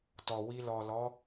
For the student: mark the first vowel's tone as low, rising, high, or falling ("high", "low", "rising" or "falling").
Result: low